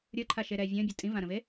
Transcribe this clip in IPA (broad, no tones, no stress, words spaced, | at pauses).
ɾʲə˞ǃʰaʃeɾɛː vʲə̃ːbʲu tʼĩvãɾə̃ve